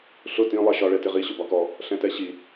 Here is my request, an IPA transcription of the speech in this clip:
ɬʊ tĩ lˠɛʃɒ ɭɛtɪʁi ɕʊbɒkɔ | ɬɛ̃tɛɕi

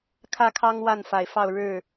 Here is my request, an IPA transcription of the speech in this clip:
kʰä˦kʰɑ˦ŋ wa˥˨nfa˨˩ɪ̯fɑ˥˨ʊ̯ɻɻ̩˥˨

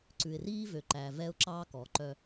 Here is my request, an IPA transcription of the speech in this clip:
ǀʉ˨ɪ̯riː˦vø˨ǃæ˨ vɛ˦ʊ̯ǁɑ˦kɔ˨ ǃœ˦

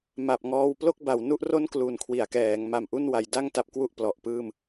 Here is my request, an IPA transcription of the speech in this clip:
ma˨˩p̚ŋɔː˧w plo˥˩k̚ba˩˦wnu˦˥ʔro˥˩n klu˨˩nkʰwi˩˦a̯kɛː˩˦ŋma˨˩m ʔu˥˩nwa˧jda˥˩ŋta˦˥p̚ kwu˥˩ʔplɔ˨˩ʔpɯː˥˩m

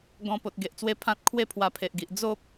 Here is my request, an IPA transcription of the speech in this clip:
ɡɔ̃˧ po˨t̚ɡe˨ʔt͡swe˧ pʰã˦t̚ kʰwe˦pʰwa˧pʰe˨ʔɡi˨ʔ d͡zo˦p̚

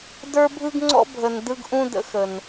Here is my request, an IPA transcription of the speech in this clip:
də˞˦bʱɯ˦ɡ ŋ͡ǀɔ̰˦bʱə˨n dɯ˦ɡʔũ˦də̰˧xə˨n

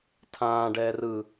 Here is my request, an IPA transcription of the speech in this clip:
tʰãː ɖɛːrɯ

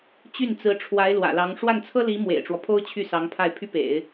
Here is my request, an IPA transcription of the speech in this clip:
t͡ɕy˥˩nt͡sɹ̩˧˥ʈ͡ʂʰwa˧˥ɪ̯ lwä̰˨˩lɑ˧˥ŋ ʂwa˥˩nt͡sʰɤ˥li˧˥ mwḛ˨˩ɪ̯ʈ͡ʂwɔ˦pʰo˥ʊ̯ t͡ɕʰy˥˩sɑ˧˥ŋ pʰa˥˩ɪ̯pʰy˥ pḛ˨˩˦ɪ̯

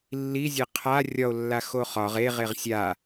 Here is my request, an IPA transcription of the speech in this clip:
lːizʲe qʰa rʲɒo̯lːa xoχɒʁ eʁeʁ sʲa

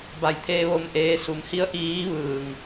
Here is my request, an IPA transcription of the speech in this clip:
ba˧˩jt̪ʰeː˧ʋo˧mʔeː˧ su˩˧mhi˧˥ə̯ ʔiː˧˥ʋɯː˧˩ŋ

